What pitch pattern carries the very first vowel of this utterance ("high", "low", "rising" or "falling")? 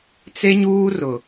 high